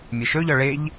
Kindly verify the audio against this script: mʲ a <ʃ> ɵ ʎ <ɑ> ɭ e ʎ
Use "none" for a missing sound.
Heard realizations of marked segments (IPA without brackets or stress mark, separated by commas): ʃ, ɒ